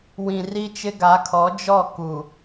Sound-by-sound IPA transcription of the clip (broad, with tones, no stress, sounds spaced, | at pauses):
w ĩ˨ r i˦ t͡ʃ ɪ˦ ɡ a˨˦ kʰ ɔ˨˦ d͡ʒ ɔ˦˨ k u˨